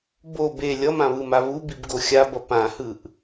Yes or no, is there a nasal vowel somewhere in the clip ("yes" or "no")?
yes